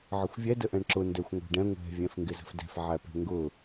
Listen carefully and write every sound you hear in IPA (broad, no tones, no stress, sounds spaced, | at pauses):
ʕ ə xʷ vʲ ɛ d ə ʔ ɛ̃ ɳ ǁ ʊ n d ɛ xʷ ŋʷ æ̤ ɖ ɛ̃ ŋʷ ɛ̤ vʲ ɛ̃ f ŋ ɡ ɪ z ə̤ f d ɛ̤ f ʕ æ p ɛ̤ ŋ ɡ ʊ